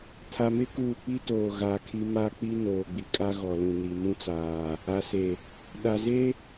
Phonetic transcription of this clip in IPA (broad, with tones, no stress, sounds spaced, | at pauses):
tʰ a˨ m ɪ˦ k uː˨ k͡p i˦ t oː˨ ɣ a˨˦ kʰ i˦ m a˦ k͡p i˦ n oː˨ ɡ͡b i˨ kʼ a˦ ɣ ɔ˨ l ũ˨ n i˨ m ũ˦ t͡s aː˨ | a˨ s e˨ | ɗ a˨ z e˦